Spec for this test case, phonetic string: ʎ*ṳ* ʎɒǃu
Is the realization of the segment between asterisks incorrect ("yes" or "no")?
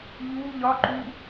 yes